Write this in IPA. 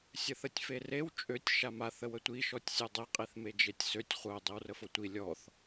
sʲəθətʲferew t͡ʃʼøtʲ ʃama θəwətʷi ʃɔtʲsʲœdˤe qʼiθmed͡ʒetʲsøtʲ χʷœ dˤiwrəfotʷi lʲɔθ

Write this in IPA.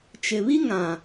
t͡ʃɪ˨βi˦ ŋã˨

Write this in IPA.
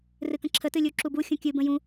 rɨkə̃ǁʰə tɨlʲuǁubu xʲũkʲɨ bə̃jũ

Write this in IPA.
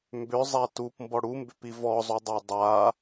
mbʏzˤa tupmbɔ ɽumbʏpi vɔzˤudˤa dˤa

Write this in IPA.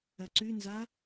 ɐǀʉnza

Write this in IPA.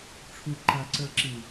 ʈ͡ʂʰuǃaǀə˞ǁi

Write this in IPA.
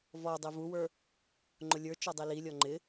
vɔdˤi vuwə˞ | ŋ͡ǃʊlʲə˞ t͡ʃɔdˤililʲɔ ŋ͡ǃɪ

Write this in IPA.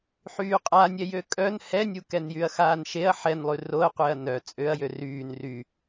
ħyːqʼanʲɛjø kʼœn hɛnʲukɛn jyɐ̯xaːnʃeɐ̯ ħɛnlˠy roɐ̯ qʷeɐ̯nœ t͡sʼøɐ̯jø ryːn ry

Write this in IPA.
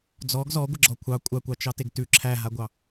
d͡zɔɡ zɔɡʷəɡ͡ǁɔ kʷʰɑ kʷʼakʷɑt͡ʃɑteɡ tʉ ǁʰæɦaɡʷɑ

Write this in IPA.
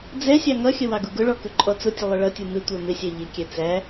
d͡zɛsʲɑ ŋʌxʲə wɑɡuɡʊɭɔ kʊǃʼɔt͡sʊtʲə lˠʊɭʌtʲu mɪtʷə˞ mɪsʲæ ʎɪkʲɛ t͡sæ

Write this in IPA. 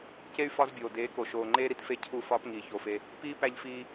ce˦y̯ fɒ˦zbʲoː˨ deː˨˦ko˨ʃoː˨ŋ͡ǃeː˦ ɾi˧tfe˦ cʰu˦˨fɒː˦pŋiː˨ ço˨fe˧ | piː˦ pæ˦ʎfiː˦

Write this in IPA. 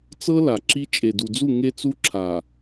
t͡sɤ˦ la˨ǁi˦ t͡ʃʼe˨du˨d͡zu˦˨ ŋe˦t͡su˦ǁʰa˨

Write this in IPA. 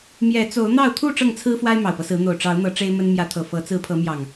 mjɛ˨˦t͡so˨˦ʊ̯n̪ɑ˥˨ʊ̯ t̪ʰu˥˨ ʈ͡ʂɤ˥˨ŋt͡sʰɹ̩˦fwa˦ɪ̯ mɑ˨˩ʊ̯pɤ˦sɹ̩˨˦ n̪o˨˩ʊ̯ ʈ͡ʂɑ˨˦ʊ̯n̪ɤ˨˦ ʈ͡ʂe˦ɪ̯mə˦n mjä˨˦t̪ʰɤ˨˩fɤ˨˦ t͡sɹ̩˨˦pʰɤ˨˦ mjɑ˨˩ŋ

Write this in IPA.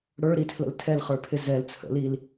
ɽə˞ɾitʰlə̰l tʰɛlχə˞pʰɪ zɛl t͡sʰə̰lil

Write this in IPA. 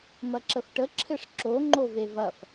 mɐǁəfʈə ǁʰɘʂǁo ŋ͡ǃovevɐf

